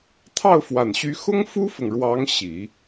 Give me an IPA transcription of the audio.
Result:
t̪ʰ ɑ˥˩ ʊ̯ f w a˨˩ n ɕ y˧˥ x ʊ˥ ŋ f u˥ f ʊ˨ ŋ ɻ w ɑ˧˥ ŋ ɕ i˨˩˦

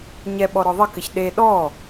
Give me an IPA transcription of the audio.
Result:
ɲ ɛ ɓ ɔ ɾ ɔ ðˤ ɘ k ɘ ç ɗ e ɗ ɔ

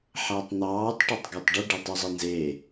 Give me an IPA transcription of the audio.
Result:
ħ æ tˤ n̪ ɑː tˤ ʈ o tˤ ɡ e tˤ ɖ i ɖ e tˤ u zˤ i n z e

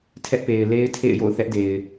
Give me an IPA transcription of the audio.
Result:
tʰ ɛ˦ ʔ p e˨ ɪ̯ l e˦ ɪ̯ tʰ ḛ˦˨ ɪ̯ j o̰˦˨ ʊ̯ θ ɛ˦ ʔ d e˨ ɪ̯

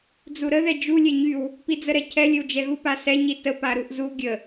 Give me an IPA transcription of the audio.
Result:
d͡z u ɾ ə ð ɛ d͡ʒ u lʲ ɛ ɲ y w | p i d͡z ə ɾ ɛ cʰ ɛ lʲ ə w d͡ʒ ɛ ɣ u p a s ɛ ɲ i t ə p a ɾ u ʔ z u ɡʲ ə

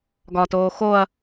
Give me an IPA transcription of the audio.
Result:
ɡ ɒ t oː x o ɐ̯

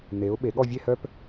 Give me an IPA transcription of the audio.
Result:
n e˩˧ ʊ̯ ɓ e˩˧ ɠ ɔ˥˧ vʲ e˥˧ h œ˥ p

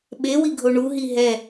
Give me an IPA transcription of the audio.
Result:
ɓ e w i ɡʱ o ɳ u ɦ i ɦ ɛ

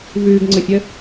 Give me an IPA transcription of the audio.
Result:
v ʉː ɡ ŋ͡ǀ ə fʲ ə

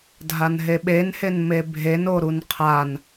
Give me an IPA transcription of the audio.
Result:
dʱ a n ɦ e ɓ e n h e n m e bʱ e n o ɾ u n qʰ a n

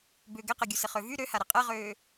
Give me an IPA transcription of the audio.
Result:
b ʏ ɡ ɛ q ɛ ɡʲ u s ɪ χ ø v y ɾ ø h a ɾ ɪ qʼ ɛ ʁ øː

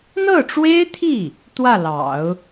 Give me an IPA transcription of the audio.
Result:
n̪ ɤ˥˩ ʈ͡ʂ w e˥ ɪ̯ t̪ʰ i˥˩ | t̪ w ä˥˩ l ɑ̰˨˩˦ ʊ̯

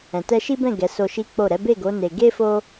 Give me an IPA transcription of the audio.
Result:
ɛ̃˨ t ɛ˧ ʃ i˦ b ɛ̃˦˨ ɡ ɛ˨˦ s o˧ ʃ i˦ k͡p o˦˨ ɾ ɛ˨˦ b e˦˨ ɡ o˨˦ n e˧ ɡ e˦ f o˦

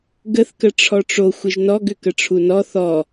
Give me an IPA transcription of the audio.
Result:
ɡ ə θ k ə ʈ͡ʂʰ ɔ ʈ͡ʂ o xʷ ɪ ʒ n ɔ ɡ ʏ k ə ʈ͡ʂʰ u n ɔ θ ɔ

